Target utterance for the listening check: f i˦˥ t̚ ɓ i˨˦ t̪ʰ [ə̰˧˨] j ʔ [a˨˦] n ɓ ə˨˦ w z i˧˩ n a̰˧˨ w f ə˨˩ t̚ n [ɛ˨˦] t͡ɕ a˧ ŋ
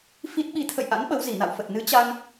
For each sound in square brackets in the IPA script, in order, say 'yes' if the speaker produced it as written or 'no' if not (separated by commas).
yes, no, no